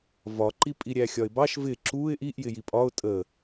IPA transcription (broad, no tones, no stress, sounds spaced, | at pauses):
v ɒ ǃ i pʼ i ɾʲ æ xʲ ɒ ɪ̯ b ɑ ʃ v ɪ ǁ u ɪ̯ ʔ i ʔ j ɪ j i pʼ ɒ ʊ̯ tʼ ə